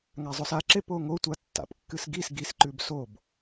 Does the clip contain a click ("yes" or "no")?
yes